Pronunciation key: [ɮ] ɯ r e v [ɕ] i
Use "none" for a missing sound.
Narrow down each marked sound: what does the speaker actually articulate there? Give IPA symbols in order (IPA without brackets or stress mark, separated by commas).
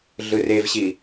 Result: ɮ, ɕ